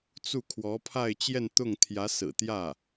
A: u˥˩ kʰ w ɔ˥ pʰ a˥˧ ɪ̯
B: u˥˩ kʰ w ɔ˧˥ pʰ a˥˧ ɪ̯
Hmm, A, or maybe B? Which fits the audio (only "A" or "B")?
B